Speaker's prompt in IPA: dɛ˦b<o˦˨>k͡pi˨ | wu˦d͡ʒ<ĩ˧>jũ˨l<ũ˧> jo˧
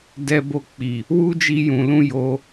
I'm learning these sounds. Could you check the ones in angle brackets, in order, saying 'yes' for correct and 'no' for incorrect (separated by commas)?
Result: yes, no, yes